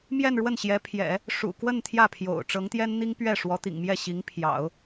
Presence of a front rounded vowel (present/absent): absent